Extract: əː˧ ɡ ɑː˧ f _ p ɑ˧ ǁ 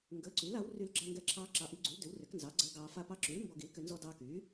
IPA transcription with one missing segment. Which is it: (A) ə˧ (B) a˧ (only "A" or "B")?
B